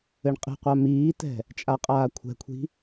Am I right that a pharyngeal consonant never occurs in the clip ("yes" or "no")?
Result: yes